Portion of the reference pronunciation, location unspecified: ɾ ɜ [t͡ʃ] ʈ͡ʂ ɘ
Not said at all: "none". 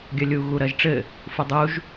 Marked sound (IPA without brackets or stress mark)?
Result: ʒ